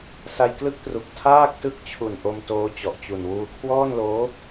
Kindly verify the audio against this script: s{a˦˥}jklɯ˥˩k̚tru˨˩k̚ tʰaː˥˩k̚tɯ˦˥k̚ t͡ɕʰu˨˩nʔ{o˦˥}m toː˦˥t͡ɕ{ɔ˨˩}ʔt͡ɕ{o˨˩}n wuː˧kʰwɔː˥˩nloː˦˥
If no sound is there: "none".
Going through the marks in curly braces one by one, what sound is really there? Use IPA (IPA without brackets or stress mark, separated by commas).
a˧, o˧, ɔ˨˩, u˨˩